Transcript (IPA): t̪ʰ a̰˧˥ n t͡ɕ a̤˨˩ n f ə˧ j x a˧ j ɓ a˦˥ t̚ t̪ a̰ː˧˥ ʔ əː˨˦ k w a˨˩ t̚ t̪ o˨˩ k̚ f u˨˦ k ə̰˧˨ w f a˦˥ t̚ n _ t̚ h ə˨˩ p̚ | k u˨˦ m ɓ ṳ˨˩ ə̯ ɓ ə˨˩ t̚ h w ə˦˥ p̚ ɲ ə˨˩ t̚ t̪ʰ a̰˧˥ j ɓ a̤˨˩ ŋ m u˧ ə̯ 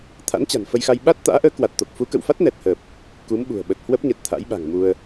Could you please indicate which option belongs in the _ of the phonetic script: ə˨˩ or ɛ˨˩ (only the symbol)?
ɛ˨˩